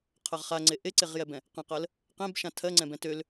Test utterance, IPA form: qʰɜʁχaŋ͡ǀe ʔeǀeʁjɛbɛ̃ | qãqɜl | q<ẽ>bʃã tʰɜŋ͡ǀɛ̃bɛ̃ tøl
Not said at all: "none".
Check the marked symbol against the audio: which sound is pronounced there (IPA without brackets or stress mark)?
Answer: ẽ